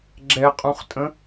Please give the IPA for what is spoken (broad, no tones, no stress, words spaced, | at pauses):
ɡ͡ǁɛqʼũχtʼə̃